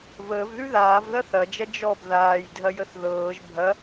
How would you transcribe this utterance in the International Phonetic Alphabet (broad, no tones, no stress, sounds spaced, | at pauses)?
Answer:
v əː v ð ʉ ð aː v ð ɐ θ ɐ d͡ʒ ɐ d͡ʒ ɔ b ð aː j dʱ ɐ j ə θ ð ɤː ʒ bʱ ɐ